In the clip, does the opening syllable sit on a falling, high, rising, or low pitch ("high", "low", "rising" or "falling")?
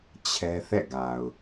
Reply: high